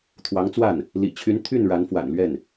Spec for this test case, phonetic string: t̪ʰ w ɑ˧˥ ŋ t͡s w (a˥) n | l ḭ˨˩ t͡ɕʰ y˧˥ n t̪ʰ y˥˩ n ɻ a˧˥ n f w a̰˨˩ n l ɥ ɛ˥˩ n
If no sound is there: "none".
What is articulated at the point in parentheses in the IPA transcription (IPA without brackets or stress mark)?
a˥˩